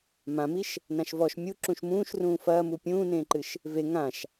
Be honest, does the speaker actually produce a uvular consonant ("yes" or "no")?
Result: no